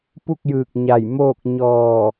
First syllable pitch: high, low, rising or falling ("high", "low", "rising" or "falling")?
falling